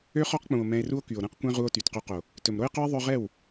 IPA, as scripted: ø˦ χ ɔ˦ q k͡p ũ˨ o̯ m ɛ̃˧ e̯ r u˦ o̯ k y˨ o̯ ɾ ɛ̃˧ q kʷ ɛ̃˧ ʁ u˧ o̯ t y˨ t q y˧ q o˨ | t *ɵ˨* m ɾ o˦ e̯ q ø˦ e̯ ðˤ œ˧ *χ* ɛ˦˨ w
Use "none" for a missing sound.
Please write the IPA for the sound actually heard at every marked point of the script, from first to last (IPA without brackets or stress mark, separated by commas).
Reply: ɵ˨, ʁ